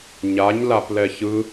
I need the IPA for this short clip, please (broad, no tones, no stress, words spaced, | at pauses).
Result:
ɲaɲlaplɛ çɯ